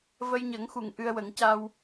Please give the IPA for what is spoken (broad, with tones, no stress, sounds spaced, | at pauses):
v ə˧ j ɲ ə˨˩˦ ŋ x u˨˩˨ ŋ ʔ ɨ˧ ə̯ w ə˨˩˦ ŋ c a˧ w